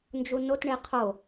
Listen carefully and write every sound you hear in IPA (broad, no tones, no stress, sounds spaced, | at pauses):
n d͡ʒ u n o t ɳ e qʰ o